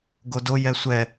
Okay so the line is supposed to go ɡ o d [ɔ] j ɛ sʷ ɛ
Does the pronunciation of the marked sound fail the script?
yes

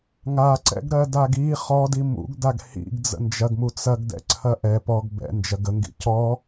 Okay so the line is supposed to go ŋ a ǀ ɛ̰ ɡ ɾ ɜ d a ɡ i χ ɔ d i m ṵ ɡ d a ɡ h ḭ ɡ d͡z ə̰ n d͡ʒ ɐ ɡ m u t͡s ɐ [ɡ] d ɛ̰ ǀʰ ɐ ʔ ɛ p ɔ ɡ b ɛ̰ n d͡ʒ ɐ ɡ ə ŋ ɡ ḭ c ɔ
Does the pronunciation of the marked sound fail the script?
no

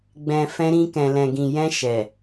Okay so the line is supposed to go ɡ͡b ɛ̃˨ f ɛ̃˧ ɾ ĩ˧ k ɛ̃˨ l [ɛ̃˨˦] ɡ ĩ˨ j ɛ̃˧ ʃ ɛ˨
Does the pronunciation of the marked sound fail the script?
yes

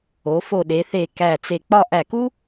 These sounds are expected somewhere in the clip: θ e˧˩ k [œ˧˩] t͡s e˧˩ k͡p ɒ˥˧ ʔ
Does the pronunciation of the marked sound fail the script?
yes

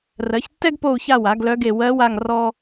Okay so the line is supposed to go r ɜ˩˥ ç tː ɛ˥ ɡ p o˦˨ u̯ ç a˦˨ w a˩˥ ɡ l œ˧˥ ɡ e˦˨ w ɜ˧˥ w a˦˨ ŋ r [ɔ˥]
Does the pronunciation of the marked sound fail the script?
no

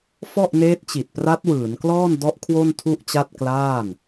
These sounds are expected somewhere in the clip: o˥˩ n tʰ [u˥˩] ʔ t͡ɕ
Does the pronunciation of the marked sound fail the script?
no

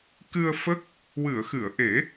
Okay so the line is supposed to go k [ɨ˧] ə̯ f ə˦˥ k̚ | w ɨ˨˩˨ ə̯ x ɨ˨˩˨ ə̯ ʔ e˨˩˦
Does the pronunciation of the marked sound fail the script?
no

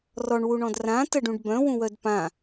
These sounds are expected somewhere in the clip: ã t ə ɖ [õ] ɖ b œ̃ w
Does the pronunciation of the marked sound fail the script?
yes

